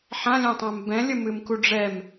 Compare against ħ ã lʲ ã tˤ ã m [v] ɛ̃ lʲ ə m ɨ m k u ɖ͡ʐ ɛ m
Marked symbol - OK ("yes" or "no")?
no